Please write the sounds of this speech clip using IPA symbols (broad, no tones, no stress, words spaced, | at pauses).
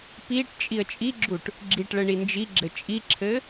piʈ t͡ʃʼiə̯t͡ʃʼiɡ͡ǁuʈ | ɡ͡ǁiʈɭɘ ɳind͡ʒiɡ͡ǁɘ t͡ʃʼiǁʰɘ